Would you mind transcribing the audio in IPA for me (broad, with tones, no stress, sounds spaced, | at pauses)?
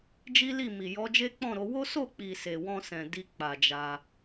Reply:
d͡ʒ i˦ l i˦˨ m i˨ j ɔ˨˦ d͡ʒ e˦ k͡p ɔ̃˦˨ ɾ o˨˦ w o˦ s o˦˨ k͡p i˨ s e˨ w ɔ̃˧ s ɛ̃˨ d i˧ k͡p a˨ d͡ʒ a˧